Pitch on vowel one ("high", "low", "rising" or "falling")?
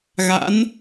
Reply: rising